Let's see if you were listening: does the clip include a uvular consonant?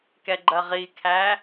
yes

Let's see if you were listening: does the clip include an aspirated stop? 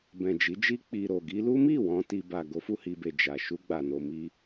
no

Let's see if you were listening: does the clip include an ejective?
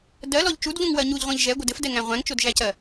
no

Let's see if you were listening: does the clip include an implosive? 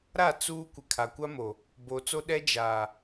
yes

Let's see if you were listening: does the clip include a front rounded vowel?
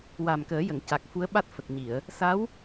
no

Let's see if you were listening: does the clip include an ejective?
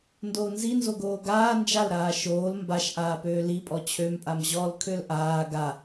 yes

